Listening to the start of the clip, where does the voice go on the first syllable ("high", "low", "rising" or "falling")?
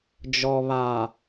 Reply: low